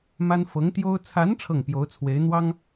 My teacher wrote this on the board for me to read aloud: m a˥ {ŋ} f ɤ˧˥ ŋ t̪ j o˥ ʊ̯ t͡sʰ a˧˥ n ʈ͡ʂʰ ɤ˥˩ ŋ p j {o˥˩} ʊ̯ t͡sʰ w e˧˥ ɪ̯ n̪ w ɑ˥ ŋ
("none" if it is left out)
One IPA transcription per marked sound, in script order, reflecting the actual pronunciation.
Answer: n, o˧˥

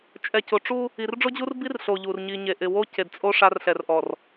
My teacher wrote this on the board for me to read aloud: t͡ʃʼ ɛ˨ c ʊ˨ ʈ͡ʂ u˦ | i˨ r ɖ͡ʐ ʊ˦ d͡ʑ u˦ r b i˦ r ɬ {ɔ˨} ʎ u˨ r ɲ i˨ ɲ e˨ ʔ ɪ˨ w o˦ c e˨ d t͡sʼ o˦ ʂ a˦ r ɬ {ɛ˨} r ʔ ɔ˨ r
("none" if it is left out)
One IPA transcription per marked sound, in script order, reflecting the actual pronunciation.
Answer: o˨, ɛ˨

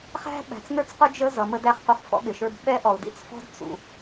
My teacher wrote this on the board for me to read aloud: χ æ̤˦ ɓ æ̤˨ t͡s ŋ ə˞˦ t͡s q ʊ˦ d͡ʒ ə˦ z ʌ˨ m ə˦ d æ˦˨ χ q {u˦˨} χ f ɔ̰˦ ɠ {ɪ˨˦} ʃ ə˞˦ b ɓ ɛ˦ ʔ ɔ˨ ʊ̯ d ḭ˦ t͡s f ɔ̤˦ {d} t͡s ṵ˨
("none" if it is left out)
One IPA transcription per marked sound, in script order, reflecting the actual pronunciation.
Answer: u˦, ɪ˨, d

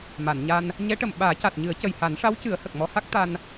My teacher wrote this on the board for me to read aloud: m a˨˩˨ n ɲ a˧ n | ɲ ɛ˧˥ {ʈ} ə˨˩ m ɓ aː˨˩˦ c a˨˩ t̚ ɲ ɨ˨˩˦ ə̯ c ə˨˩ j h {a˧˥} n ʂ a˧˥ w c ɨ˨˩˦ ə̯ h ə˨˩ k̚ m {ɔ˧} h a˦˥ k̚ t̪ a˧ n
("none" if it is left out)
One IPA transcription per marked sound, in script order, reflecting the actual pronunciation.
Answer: ʈ, a˨˩˦, ɔ˧

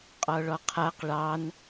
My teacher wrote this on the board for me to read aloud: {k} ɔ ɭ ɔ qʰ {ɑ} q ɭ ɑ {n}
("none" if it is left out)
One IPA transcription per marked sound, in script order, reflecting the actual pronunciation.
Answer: qʼ, a, n

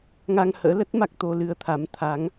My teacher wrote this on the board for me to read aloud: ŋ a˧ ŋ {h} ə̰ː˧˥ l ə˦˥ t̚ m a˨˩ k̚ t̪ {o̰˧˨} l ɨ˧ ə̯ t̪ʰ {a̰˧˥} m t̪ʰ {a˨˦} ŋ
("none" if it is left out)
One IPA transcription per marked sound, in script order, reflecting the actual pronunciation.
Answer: h, o˧, a˨˦, a˨˦

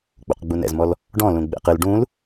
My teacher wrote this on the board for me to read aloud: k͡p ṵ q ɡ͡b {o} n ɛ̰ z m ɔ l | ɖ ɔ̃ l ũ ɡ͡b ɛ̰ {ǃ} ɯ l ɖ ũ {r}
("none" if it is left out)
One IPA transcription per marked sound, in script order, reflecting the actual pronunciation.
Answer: u, q, l

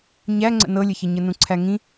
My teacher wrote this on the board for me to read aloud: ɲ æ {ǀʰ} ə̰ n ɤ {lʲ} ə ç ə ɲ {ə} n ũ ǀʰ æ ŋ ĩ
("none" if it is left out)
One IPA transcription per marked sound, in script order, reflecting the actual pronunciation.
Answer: ŋ͡ǀ, lʲ, ə

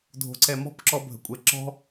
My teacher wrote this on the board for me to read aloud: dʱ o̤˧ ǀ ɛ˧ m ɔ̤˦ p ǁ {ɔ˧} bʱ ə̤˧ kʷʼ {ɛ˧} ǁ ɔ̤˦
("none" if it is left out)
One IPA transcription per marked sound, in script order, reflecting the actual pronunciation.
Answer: ɔ˦, ɛ˧

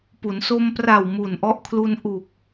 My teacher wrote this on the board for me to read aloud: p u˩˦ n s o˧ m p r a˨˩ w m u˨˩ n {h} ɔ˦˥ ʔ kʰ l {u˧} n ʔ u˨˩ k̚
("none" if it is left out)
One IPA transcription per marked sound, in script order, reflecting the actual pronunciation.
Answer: ʔ, u˧

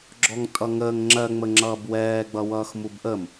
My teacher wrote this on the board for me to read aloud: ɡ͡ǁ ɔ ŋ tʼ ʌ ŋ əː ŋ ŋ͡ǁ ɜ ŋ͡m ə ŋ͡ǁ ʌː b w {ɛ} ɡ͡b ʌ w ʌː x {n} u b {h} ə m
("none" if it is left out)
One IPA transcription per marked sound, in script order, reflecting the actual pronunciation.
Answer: ɛː, m, ʔ

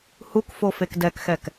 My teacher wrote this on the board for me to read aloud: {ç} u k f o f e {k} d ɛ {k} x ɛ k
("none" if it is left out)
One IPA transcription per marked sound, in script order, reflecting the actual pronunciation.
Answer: h, k, k

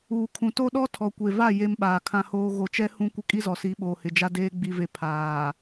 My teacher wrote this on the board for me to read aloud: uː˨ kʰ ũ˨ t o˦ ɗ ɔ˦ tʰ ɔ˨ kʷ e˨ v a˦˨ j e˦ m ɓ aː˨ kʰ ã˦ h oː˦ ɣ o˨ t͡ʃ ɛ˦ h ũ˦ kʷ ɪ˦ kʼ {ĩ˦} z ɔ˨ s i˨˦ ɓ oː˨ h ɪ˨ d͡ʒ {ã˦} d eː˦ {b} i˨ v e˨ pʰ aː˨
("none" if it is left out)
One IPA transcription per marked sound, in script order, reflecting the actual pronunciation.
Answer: i˦, a˦, ɡ͡b

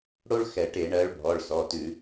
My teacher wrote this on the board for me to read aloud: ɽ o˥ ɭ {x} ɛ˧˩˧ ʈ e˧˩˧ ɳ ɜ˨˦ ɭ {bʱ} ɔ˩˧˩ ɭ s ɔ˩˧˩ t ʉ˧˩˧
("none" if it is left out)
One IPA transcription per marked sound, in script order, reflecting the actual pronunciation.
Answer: x, bʱ

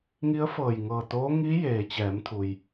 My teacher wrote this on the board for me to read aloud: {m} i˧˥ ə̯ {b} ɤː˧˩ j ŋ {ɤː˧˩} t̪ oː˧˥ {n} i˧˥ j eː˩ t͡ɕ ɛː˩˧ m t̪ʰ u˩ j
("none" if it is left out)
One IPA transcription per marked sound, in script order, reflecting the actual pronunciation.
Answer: ŋ, f, ɤː˧˩, ŋ

